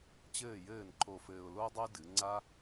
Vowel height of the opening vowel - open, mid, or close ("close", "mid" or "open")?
mid